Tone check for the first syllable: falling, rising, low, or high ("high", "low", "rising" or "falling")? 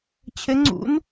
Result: rising